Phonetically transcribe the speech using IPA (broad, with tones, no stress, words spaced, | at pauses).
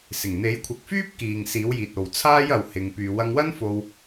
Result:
sɪ˨˩ŋn̪e˨˥jkʷʰɐ˨˥k̚ fyː˥p̚kiː˨ŋ siː˨˥wjiː˨t̚ o˨w t͡sʰaː˥jɐ˨w hɪ˨ŋ pyː˨ wɐ˧ŋwɐ˥nfo˧w